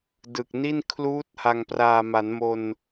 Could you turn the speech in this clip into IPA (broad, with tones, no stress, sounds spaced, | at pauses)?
d ɯ˨˩ k̚ n i˥˩ n kʰ l uː˦˥ t̚ h a˨˩ ŋ p r aː˨˩ m a˩˦ n m o˧ n